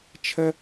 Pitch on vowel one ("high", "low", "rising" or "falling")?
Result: high